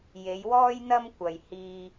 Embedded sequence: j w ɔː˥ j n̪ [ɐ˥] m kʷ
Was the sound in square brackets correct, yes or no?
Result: yes